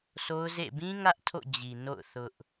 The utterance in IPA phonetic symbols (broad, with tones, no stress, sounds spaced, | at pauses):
s o˦ ʊ̯ z ḛ˦˨ b ĩ˦ ŋ ä˦ ʔ tʰ o̰˦˨ d͡ʑ i˨ n o̰˦˨ ʊ̯ θ ʊ˦ ʔ